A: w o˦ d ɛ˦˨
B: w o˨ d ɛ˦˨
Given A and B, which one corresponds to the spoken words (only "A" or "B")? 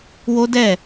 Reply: A